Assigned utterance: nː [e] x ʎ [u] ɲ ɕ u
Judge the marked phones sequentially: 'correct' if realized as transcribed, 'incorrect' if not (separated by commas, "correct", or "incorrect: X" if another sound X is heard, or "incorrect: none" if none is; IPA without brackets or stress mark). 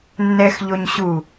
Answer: incorrect: ɛ, incorrect: o